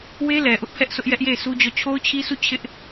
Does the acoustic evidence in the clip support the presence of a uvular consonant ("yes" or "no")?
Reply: no